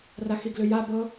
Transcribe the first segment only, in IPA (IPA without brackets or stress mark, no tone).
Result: r